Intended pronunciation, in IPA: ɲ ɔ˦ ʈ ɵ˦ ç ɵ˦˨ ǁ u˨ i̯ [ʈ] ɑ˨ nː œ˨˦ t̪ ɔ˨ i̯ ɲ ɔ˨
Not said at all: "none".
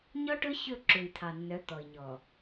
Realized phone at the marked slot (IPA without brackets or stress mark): t̪ʰ